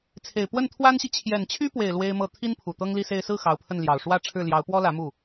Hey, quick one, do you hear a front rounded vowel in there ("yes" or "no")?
yes